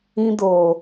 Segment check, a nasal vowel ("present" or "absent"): present